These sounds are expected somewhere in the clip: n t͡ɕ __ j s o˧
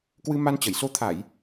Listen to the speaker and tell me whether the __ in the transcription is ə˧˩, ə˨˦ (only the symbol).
ə˧˩